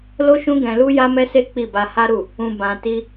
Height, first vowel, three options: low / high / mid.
mid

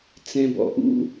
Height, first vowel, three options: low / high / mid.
mid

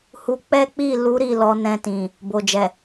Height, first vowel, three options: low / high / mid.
high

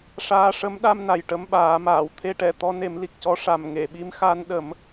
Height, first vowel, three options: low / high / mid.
low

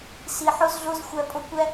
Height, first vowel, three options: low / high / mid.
high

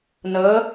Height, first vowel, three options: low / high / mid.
mid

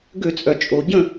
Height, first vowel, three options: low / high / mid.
mid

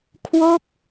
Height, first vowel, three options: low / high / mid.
mid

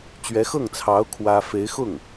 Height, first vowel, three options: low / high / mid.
mid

